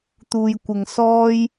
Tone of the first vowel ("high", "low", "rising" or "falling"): low